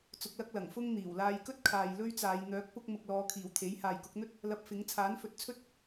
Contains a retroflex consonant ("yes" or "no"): no